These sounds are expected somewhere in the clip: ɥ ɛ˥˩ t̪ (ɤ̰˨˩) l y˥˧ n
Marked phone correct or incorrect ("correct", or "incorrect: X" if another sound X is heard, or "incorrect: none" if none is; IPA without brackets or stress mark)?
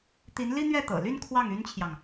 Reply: correct